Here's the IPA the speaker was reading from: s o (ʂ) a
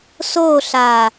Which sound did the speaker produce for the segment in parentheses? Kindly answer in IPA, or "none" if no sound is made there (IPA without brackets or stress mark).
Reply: ɬ